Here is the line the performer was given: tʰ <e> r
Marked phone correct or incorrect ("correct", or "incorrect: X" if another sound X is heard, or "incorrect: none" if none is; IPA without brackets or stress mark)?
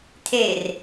correct